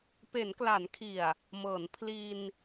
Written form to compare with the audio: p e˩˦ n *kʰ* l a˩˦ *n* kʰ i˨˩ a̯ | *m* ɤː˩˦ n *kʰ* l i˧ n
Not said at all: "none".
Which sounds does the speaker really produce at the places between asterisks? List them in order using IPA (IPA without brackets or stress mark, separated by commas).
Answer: k, n, m, pʰ